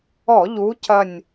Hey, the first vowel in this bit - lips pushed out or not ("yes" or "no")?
yes